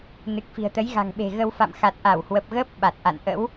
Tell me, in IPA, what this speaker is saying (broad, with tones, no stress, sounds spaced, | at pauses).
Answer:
n ɨ˨˩ k̚ f i̤˨˩ ə̯ t̪ ə˨˦ j ɣ a̤˨˩ ŋ ɓ e̤˨˩ ɣ ə˧ w f a̰˧˨ m x a˨˩ t̚ ʔ a˧˩ w h w ə˨˩ p̚ ɣ əː˦˥ p̚ ɓ a˨˩ t̚ ʔ a̰˧˨ n ʔ ə̰˧˥ w